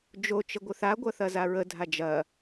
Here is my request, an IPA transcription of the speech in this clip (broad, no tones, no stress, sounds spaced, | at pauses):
d͡ʒ o t͡ʃ ə ɡʷ ə θ a ɡʷ ɐ θ ɐ z a ɹ ə dʱ a d͡ʒ ɐ